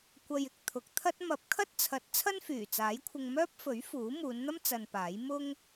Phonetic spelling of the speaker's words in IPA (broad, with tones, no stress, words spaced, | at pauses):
kʷɐ˨jɪ˨k̚ t̪ʰʊ˨k̚t̪ʰɐ˥t̚ mɐ˨˥p̚ kʰɐ˥t̚t͡sʰɐ˨˥t̚ t͡sʰɐ˥nfyː˨˩t͡saː˨˥jkʷʰɪ˧ŋ mœː˥p̚fɵ˨˥ɥ fuː˨˥ muː˨˧nn̪ɐ˥m t͡sɐ˧npaː˨˥j mʊ˥ŋ